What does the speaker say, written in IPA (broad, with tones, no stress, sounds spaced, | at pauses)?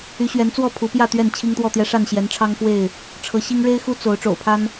y˨˦ ɕ ɥ ɛ˨˦ n t͡s w ɔ˥˨ pʰ u˨˦ p j ä˥˨ t̪ ɥ ɛ˥˨ n t͡ɕʰ i˦ ŋ t̪ w ɔ˥˨ t̪ j ɛ˦ ʂ a˥˨ n ɕ j ɛ˨˦ n ʈ͡ʂʰ ɑ˦ ŋ f w e˥˨ ɪ̯ | ʈ͡ʂʰ ɤ˨˦ ɕ i˦ ŋ ɻ e˦ ɪ̯ x u˦ t͡s o˨˦ ʊ̯ ʈ͡ʂ o̰˨˩ ʊ̯ pʰ a˦ n